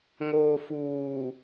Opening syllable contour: low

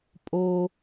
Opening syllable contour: high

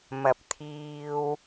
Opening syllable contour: rising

